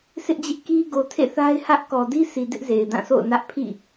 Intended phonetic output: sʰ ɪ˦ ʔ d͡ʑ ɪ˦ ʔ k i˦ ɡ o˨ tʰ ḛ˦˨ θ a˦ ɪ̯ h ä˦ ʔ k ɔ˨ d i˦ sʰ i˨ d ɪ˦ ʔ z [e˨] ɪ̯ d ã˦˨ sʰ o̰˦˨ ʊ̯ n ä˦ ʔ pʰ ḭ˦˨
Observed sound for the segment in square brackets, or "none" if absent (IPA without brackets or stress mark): e˨